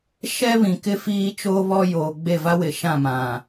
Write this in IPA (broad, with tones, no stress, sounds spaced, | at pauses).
ʃ ɛ˦ β ĩ˨ k ɪ˦ f iː˦ t͡ʃ oː˦ β ɔ˦ j oː˨ ɡ͡b e˦˨ v a˦ w ɪ˨ ʃ ã˦˨ m ã˨